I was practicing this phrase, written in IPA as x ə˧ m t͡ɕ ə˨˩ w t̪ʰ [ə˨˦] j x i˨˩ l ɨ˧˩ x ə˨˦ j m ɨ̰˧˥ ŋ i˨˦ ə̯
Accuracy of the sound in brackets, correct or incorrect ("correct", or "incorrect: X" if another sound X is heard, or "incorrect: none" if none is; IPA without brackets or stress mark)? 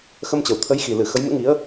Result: correct